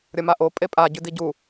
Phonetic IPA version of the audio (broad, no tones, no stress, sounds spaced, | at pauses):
ɾʲ ɐ m a ʔ o pʼ e pʼ a ɟ ʉ d i ɟ u